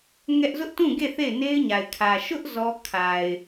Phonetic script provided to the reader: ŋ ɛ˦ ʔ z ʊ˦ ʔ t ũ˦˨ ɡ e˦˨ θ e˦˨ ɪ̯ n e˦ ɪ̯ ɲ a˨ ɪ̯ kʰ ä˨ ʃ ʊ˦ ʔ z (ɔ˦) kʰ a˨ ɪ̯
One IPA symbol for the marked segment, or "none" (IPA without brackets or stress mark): ɔ˦